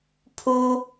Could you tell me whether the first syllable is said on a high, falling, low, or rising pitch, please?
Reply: high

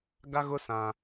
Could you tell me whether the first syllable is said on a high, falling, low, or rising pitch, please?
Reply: high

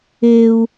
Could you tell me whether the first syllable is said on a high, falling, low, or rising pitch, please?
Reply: high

